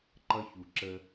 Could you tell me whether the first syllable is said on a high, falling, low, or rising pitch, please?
high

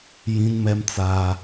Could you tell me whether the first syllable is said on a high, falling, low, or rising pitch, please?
high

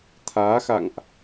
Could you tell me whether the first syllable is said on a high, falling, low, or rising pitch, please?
rising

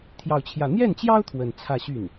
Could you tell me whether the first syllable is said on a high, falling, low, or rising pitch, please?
falling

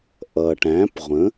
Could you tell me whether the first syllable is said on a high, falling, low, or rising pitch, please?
low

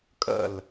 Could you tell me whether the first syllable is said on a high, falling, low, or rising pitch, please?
falling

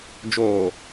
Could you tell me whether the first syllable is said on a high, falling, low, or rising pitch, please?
low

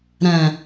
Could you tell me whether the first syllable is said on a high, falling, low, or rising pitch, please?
low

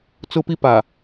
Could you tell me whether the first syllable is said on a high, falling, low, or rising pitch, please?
high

